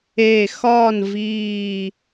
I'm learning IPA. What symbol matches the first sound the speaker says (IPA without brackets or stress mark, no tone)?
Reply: eː